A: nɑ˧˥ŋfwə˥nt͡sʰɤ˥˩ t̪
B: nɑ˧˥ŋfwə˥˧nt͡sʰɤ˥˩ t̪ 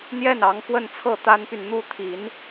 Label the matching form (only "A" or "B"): B